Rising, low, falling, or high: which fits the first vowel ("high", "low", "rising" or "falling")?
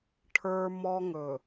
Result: high